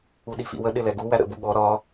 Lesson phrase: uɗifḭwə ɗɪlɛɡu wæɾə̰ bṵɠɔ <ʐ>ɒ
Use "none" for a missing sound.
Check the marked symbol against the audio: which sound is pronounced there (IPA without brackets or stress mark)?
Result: ɾ